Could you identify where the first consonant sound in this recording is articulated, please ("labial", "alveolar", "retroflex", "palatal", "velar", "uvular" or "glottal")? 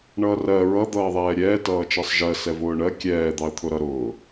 retroflex